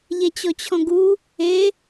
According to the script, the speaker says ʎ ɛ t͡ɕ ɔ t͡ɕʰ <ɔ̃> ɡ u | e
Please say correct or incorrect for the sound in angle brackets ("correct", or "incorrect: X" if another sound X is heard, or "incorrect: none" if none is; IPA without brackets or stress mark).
correct